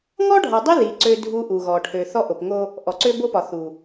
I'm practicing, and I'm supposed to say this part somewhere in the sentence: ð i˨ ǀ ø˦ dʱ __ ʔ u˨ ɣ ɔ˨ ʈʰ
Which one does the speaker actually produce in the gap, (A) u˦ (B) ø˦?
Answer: A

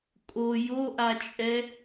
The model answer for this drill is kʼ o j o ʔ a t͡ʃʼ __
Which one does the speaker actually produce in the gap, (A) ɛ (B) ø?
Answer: A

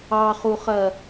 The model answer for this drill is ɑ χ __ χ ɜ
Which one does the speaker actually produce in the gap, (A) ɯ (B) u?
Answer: B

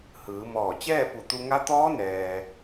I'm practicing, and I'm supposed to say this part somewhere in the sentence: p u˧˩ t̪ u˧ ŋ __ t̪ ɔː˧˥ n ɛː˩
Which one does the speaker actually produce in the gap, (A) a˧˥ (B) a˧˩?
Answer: A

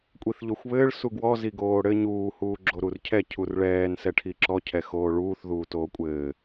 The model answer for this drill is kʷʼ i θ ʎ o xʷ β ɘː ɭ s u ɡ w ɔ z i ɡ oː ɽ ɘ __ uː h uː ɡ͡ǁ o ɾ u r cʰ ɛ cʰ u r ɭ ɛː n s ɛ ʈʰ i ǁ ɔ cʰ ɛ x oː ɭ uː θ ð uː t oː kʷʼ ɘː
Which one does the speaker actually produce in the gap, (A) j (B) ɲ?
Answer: B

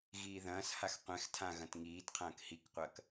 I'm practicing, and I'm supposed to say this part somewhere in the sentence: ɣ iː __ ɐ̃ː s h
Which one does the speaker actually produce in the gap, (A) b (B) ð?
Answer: B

